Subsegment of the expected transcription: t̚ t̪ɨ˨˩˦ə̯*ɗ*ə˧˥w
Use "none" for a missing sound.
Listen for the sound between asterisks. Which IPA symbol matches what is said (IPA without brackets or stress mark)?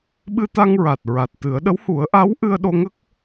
ɗ